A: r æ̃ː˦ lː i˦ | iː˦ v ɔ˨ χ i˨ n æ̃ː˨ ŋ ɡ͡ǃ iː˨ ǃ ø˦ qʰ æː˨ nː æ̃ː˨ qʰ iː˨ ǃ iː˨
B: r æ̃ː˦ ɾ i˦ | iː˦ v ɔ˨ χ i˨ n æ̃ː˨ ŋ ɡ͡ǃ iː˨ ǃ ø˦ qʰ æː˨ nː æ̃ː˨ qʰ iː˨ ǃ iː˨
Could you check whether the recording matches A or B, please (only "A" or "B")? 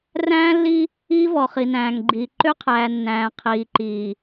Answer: A